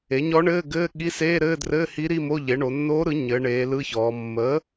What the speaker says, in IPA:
e˩˥ ɲ ɔ˧˥ ɳ ɘː˧˥˧ ɡ ɘː˧˥˧ ɠ i˧˥˧ s eː˧˥˧ ɾ ɘː˧˥˧ d r ɘː˧˥˧ h i˧˥ ɾ i˧˥˧ m o˧˥˧ ʎ e˩˥ ɳ o˩˧ nː oː˧˥ ɾ ɯ˩˥ ɲ ɘː˩˧ ɳ eː˩˧ l ɯ˧˥ ç ɔː˩˧ mː ə˩˥

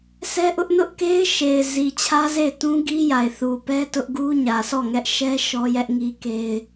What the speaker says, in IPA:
sʰ ɛ˦ ʔ ʊ˦ ʔ n ʊ˦ ʔ k e˦ ɪ̯ ʃ e˨ ɪ̯ z i˨ t͡ɕʰ ä˦ z e˦˨ ɪ̯ t ũ˦ ɡ i˦ j a˨ ɪ̯ θ u˨ p ɛ˦ t ʊ˦ ʔ ɡ u˦ ɲ ä˨ s ɔ˦˨ ŋ ɛ˦ ʔ ʃ ɛ˦ ʃ ɔ˦ j ɛ˦ ʔ ŋ i˦ k e˦ ɪ̯

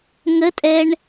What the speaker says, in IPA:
ŋ ə tʼ ɛ ɳ

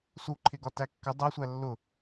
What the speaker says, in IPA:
s u ǃʰ ɪ ɡ ɒ t æ kː ə dˤ æ sʷ æ lː ʊ

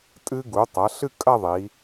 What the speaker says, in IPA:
tʼ ɨ˧ ɡ u˩˧ tˤ ɐ˩˧ ɬ ɨ˥˧ kʼ ɐ˥˧ ðˤ i˩˧

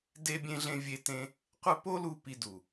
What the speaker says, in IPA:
d e˧ bʲ ẽ˧ ɮ ẽ˧ vʲ e˦ t ẽ˦ | qʷ ɘ˦ p o˦ l u˧ p i˧ d u˨

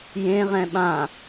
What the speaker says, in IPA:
j ẽ ʁ ɛ̃ ɓ ã

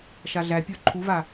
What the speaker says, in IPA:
ʃ a ɮ æ pʲ ə˞ ǃʰ u v a

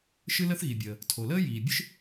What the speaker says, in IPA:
ʃ ɨ˥ l ə˥ θ ɣ i˩ bʲ əː˩ | tʰ o˩ l əː˥ j iː˩ bʲ ɨ˥ ʃ

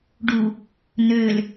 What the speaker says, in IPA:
ɖ u | n ø l

